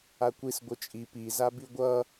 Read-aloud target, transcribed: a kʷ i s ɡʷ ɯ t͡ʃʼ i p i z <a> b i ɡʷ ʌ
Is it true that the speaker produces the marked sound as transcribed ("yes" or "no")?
yes